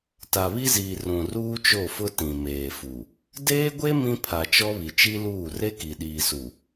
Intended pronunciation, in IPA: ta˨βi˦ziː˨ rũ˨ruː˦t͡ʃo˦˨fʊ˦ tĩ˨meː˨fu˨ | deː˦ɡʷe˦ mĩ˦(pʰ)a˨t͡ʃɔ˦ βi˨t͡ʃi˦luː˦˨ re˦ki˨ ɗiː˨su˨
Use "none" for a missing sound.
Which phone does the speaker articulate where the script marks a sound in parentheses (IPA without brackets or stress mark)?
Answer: pʰ